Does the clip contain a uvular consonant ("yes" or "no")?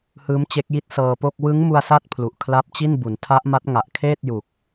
no